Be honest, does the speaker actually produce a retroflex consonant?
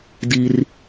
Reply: no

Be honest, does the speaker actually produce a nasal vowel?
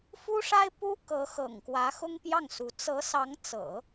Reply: no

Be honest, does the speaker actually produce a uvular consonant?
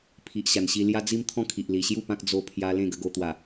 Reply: no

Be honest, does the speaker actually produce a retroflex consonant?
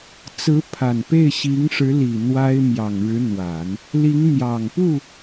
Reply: yes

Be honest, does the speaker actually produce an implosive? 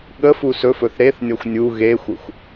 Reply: yes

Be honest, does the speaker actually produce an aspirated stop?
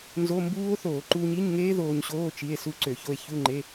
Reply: no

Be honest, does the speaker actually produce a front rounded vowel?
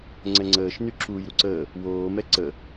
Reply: yes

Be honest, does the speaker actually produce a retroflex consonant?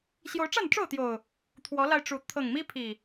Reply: yes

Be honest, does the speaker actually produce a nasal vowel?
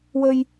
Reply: no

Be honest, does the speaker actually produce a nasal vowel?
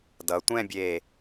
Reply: yes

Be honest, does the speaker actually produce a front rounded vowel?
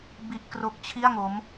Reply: no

